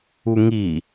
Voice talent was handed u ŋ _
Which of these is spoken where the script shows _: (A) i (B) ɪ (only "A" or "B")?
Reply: A